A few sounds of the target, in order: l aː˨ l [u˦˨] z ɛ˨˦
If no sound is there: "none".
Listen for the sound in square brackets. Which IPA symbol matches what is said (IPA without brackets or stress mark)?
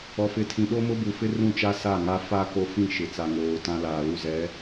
u˦˨